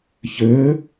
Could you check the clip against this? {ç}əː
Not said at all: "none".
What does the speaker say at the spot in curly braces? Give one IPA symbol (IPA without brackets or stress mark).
ç